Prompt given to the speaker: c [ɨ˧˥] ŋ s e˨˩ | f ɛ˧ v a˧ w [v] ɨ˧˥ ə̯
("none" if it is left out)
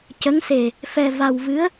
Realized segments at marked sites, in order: ə˧˥, v

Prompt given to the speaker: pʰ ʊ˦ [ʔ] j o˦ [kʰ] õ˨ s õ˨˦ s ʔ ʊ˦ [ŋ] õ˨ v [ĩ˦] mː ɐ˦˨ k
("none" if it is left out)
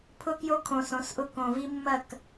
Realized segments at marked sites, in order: k, kʰ, k, i˦

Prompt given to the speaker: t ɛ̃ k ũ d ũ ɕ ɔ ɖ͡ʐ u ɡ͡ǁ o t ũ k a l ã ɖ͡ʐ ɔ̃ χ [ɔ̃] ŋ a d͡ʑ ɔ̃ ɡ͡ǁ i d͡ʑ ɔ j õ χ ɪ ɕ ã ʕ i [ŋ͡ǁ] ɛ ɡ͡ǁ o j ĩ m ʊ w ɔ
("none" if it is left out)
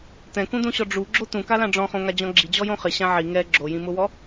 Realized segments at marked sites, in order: õ, ŋ

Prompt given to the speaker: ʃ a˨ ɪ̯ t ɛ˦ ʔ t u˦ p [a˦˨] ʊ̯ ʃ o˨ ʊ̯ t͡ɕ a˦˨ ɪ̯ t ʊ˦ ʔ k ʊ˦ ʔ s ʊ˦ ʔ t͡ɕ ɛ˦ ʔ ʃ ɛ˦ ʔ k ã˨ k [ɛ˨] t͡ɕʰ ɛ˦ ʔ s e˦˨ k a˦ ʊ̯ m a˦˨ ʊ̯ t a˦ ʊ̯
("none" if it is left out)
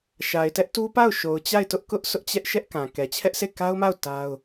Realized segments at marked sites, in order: a˦˨, ɛ˨

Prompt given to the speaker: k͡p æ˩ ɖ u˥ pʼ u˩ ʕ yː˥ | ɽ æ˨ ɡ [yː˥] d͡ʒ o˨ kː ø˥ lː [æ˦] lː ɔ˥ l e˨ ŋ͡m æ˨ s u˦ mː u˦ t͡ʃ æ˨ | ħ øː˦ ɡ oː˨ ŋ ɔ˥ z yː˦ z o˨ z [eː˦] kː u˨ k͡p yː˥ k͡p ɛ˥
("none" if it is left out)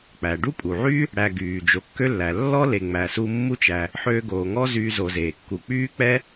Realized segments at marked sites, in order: yː˩, æ˩, eː˩

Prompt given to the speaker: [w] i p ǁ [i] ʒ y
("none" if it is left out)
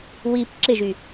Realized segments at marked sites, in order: w, ɪ

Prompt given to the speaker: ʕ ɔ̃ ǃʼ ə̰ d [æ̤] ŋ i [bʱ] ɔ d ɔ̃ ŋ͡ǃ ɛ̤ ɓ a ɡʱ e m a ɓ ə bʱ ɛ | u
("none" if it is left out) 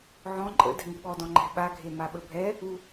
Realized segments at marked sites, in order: ɛ̤, ɓ

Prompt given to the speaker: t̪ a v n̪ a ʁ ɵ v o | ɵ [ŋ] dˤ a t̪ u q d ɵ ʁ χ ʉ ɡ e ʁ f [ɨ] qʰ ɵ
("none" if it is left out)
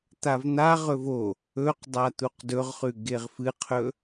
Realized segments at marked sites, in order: q, ɨ

